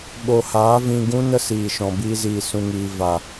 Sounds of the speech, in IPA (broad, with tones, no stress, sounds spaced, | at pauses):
ɓ o˨ h aː˨˦ v ĩ˧ ɡ ũ˦ n ə˦ s iː˨ ʃ ɔ̃˨ b iː˧ z iː˨ s ũ˨ ŋ iː˨ v a˨